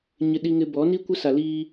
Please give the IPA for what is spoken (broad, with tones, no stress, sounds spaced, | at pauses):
ɲ ɪ˦ ɗ i˦ ŋ ɪ˦ b ɔ˨˦ n i˦ kʷ ɪ˦ s a˨ l iː˦